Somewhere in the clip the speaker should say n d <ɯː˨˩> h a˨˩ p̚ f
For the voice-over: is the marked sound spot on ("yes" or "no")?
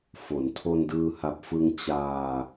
no